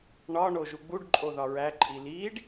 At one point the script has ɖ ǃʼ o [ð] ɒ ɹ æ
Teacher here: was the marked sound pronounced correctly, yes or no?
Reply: yes